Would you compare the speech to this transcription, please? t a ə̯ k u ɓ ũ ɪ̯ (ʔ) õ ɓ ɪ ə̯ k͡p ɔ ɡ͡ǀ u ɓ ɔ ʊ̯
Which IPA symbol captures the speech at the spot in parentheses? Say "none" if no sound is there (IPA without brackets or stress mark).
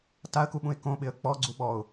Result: k